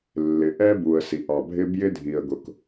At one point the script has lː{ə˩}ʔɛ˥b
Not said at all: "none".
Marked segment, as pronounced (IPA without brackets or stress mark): ɪ˩